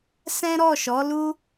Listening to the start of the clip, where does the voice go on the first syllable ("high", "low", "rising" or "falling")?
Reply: high